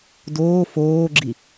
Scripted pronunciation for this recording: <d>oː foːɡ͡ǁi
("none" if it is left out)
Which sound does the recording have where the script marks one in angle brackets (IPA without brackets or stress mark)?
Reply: d